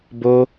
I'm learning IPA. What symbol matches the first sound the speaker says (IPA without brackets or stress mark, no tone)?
b